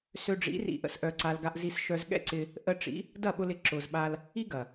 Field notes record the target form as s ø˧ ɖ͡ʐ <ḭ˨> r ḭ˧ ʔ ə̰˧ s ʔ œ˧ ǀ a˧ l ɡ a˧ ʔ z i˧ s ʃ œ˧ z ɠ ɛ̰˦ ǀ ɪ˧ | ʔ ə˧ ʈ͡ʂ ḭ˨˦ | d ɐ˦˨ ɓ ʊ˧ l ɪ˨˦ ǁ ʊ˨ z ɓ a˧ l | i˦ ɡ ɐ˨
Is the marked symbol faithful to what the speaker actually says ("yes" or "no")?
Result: no